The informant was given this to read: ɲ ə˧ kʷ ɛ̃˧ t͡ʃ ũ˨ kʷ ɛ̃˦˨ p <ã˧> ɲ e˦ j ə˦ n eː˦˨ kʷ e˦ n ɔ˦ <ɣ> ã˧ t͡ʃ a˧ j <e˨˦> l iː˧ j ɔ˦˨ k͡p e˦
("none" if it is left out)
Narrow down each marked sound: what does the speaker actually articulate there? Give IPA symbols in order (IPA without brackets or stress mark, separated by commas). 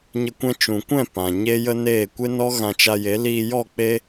ã˨, ɣ, e˨˦